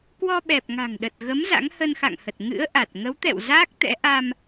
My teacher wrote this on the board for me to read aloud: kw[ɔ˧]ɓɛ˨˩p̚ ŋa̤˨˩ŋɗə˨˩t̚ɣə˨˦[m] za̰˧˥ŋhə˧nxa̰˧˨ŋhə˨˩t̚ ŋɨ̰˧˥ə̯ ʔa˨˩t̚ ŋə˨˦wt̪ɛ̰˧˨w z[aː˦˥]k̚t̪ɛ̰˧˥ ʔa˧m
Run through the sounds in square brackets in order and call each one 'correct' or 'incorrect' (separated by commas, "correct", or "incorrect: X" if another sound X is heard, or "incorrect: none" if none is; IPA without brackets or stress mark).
correct, correct, correct